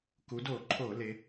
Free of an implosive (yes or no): yes